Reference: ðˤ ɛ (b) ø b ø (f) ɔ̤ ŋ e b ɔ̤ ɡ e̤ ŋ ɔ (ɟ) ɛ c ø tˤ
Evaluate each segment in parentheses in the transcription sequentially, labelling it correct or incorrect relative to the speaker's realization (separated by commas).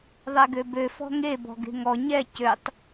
incorrect, correct, incorrect